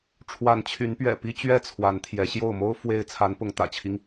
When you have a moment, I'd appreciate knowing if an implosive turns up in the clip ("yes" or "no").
no